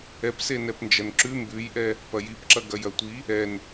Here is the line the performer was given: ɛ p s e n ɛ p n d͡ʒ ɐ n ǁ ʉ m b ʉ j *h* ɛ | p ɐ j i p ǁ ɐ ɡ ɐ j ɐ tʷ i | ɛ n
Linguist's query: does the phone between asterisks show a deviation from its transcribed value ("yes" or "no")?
yes